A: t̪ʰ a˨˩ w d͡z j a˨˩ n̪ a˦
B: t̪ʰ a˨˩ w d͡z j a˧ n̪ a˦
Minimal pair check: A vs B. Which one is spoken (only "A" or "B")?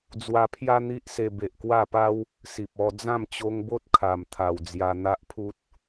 B